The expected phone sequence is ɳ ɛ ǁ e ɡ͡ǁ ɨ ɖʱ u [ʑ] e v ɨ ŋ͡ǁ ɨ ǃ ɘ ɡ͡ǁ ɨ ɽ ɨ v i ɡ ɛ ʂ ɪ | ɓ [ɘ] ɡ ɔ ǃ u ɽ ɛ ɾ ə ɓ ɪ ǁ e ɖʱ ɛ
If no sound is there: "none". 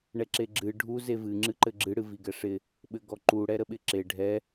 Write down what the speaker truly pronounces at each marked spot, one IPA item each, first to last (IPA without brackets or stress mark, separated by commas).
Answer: z, ɘ